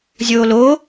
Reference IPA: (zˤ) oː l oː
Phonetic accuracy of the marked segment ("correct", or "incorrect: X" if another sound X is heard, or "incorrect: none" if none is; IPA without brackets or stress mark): incorrect: zʲ